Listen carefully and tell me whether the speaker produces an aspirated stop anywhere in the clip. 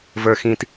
no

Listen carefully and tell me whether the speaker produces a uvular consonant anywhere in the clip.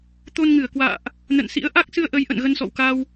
no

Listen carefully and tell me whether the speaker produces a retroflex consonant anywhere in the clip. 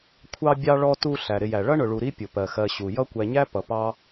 yes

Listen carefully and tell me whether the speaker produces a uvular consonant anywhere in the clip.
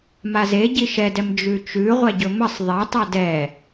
yes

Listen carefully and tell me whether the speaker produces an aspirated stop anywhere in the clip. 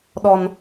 no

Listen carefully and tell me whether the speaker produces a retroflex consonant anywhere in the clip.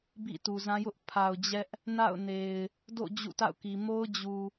no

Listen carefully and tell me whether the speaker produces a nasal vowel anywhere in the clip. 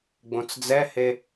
yes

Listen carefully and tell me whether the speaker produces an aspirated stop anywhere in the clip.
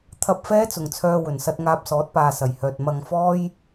yes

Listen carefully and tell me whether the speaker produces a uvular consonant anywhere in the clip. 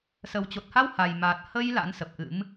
no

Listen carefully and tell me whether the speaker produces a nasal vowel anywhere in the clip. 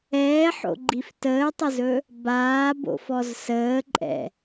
no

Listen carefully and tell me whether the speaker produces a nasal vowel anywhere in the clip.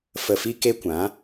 yes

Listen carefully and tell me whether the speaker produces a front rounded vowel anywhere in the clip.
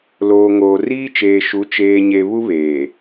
no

